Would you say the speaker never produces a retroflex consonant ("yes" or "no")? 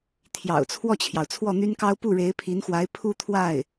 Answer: no